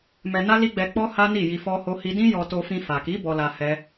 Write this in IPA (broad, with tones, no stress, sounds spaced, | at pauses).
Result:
m ɛ˧ n a˦ l i˦ ɡ͡b ɛ˧ k͡p ɔ˦ h a˦ n i˦˨ j i˧ f ɔ˦ h o˦ h i˦ d ĩ˦ j ɔ˧ t o˧ f ĩ˧ f a˨ k i˨˦ b ɔ˧ l a˧ h ɛ˦